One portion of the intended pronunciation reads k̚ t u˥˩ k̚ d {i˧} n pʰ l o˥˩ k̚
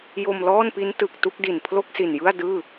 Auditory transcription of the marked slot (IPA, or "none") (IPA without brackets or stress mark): i˨˩